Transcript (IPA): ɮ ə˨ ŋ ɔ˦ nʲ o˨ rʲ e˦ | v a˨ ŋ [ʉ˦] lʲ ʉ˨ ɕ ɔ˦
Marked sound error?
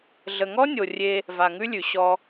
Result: no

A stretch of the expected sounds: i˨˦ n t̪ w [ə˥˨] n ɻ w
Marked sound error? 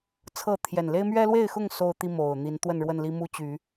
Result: no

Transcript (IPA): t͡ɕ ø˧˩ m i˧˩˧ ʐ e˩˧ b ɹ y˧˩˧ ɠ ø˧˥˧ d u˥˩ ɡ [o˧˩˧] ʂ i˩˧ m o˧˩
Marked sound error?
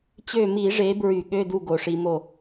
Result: no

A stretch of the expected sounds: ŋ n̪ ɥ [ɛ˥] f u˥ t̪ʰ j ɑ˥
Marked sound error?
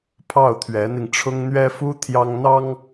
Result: no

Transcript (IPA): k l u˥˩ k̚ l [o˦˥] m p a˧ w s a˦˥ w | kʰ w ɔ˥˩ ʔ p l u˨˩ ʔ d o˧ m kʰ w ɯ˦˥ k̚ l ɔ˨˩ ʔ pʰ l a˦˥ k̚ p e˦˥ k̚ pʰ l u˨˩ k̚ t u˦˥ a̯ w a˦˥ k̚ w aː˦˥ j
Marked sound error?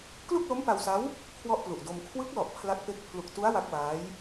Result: no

